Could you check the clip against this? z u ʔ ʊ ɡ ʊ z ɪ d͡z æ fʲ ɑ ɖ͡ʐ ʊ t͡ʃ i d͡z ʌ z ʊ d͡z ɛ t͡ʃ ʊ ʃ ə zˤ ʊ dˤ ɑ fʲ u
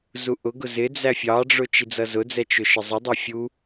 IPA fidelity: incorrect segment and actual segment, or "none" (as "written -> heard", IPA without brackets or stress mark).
none